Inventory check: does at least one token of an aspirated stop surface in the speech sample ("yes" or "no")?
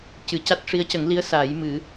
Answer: no